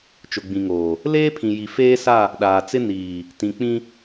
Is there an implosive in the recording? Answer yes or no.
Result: yes